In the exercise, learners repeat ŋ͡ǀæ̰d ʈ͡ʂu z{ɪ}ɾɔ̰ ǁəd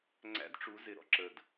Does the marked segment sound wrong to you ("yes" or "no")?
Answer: no